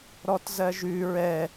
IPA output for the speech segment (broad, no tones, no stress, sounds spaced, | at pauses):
ɾ ɔ t z ɜ ʒ ʉ ɹ ɛ